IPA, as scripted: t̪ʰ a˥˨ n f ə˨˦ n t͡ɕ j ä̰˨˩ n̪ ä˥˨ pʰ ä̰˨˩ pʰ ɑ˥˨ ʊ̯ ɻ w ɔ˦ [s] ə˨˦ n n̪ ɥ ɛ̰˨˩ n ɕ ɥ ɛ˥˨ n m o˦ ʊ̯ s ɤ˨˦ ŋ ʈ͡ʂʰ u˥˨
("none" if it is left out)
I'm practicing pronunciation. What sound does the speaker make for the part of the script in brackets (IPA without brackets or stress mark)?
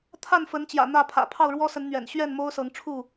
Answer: s